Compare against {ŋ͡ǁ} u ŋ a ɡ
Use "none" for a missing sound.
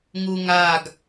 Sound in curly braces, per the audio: ŋ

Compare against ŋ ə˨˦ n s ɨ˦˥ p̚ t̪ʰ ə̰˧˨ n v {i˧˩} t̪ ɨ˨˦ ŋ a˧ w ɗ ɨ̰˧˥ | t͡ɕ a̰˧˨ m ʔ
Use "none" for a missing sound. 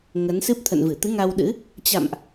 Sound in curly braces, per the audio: ɨ˧˩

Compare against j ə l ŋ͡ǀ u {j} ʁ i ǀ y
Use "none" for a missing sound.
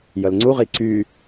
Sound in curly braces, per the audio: none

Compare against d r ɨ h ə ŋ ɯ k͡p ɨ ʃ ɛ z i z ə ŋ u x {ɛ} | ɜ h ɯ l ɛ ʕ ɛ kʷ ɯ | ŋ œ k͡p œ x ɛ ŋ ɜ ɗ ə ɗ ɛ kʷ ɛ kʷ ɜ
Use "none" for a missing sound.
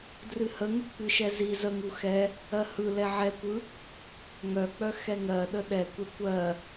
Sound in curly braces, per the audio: ɛ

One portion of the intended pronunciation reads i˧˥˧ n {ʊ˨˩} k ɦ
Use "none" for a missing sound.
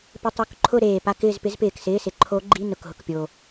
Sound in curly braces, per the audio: ʊ˨˩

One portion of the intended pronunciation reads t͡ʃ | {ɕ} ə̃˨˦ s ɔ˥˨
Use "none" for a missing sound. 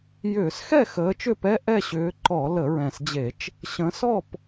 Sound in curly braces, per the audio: ɕ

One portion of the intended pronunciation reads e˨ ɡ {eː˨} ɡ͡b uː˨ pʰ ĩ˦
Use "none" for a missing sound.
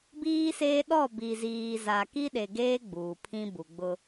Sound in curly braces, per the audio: eː˦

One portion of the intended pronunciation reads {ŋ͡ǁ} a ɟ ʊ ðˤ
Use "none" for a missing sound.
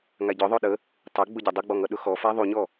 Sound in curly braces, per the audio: ŋ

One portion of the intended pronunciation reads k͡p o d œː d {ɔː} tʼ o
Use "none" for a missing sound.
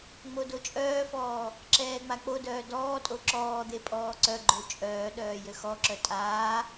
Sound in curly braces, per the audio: ɔː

